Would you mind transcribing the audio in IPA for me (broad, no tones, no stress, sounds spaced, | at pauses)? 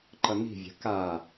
ǃ ʌ n i̤ vʲ a̤ k a